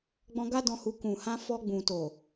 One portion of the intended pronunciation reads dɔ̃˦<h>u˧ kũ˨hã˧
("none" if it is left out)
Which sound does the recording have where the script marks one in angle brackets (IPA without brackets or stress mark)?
h